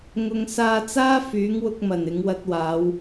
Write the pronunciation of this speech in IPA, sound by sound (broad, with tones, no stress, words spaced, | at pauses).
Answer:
ŋʊ˨ŋ saː˧t͡saː˥ fyː˨˥ŋwʊ˧k̚mɐ˨˩n ɪ˨˧ŋwɐ˧t̚waː˨˧w